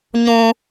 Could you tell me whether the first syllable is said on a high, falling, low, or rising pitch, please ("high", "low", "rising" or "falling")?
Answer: high